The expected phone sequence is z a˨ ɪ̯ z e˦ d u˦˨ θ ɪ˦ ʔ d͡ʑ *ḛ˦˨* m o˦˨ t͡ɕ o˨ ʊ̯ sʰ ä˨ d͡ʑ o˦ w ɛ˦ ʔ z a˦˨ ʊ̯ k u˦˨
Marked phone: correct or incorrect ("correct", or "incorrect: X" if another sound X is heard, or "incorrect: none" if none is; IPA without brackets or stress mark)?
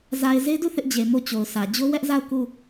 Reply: incorrect: e˨